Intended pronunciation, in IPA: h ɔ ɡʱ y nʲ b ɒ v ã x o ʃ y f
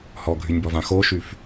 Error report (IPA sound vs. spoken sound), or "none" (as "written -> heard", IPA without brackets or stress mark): none